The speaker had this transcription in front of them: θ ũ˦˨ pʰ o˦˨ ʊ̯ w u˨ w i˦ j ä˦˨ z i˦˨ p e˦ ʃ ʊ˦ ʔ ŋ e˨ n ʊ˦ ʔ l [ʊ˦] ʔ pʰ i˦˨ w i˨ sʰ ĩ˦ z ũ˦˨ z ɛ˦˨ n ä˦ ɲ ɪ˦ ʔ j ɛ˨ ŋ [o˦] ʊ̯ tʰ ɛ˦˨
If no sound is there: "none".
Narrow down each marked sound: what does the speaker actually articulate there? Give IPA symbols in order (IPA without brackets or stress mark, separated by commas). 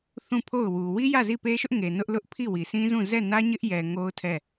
ʊ˦, o˦